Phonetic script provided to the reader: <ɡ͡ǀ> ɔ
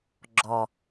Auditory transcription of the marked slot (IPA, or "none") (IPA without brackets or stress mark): ɡ͡ǁ